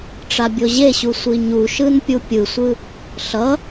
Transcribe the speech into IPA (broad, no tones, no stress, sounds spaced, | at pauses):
ʈ͡ʂ a bʲ o ʑ e ɕ u sʷ i ɲ u ʃ ɯ n pʲ u pʲ ɯ sʷ ɯ | ɬ ʌ